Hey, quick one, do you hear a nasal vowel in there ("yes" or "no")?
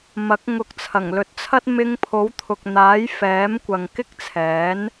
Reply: no